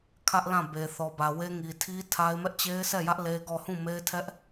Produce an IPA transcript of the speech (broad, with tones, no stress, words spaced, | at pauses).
kʰä˦ʔ lã˦˨be˨ θɔ˨bä˨we˦ ŋi˨tʰi˦ tʰa˦ɪ̯ mɛ˦ʔt͡ɕe˦ɪ̯sɛ˦˨jä˦ʔ le˦ɡɔ˦˨ hũ˦˨me˦ɪ̯tʰɛ˦ʔ